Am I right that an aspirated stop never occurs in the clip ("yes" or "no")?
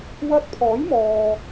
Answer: no